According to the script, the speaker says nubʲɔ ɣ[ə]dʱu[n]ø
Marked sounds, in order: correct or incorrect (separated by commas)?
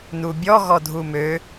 incorrect, incorrect